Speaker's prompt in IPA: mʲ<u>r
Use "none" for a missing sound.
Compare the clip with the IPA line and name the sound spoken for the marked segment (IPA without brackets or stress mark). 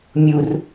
u